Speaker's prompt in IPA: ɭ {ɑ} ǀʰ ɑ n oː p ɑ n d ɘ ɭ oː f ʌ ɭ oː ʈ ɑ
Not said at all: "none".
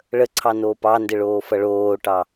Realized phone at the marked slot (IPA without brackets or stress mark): ə